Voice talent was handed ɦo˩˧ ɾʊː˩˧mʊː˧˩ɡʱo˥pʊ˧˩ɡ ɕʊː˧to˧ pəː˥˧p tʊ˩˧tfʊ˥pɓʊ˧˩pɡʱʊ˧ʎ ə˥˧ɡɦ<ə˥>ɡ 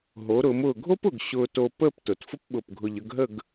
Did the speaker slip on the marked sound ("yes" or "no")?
yes